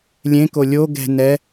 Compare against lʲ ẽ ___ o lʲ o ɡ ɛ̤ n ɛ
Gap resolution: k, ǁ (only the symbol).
k